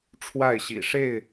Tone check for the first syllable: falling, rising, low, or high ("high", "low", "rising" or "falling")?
falling